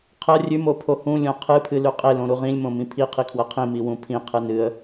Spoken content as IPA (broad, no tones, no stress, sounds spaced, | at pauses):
qʰ ɐ rʲ ʉ m o pʰ o h ũ lʲ õ qʰ ɨ pʰ ɨ l ʉ qʼ e l õ ɾ u ʁ ĩ lʲ m õ m ĩ pʰ i qʰ i kʰ w ɐ qʰ ĩ m i w ũ pʰ ĩ qʰ ɨ n ɨ ə̯